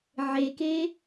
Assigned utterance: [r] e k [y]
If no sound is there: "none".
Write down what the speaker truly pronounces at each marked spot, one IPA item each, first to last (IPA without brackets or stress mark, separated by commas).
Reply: ʕ, e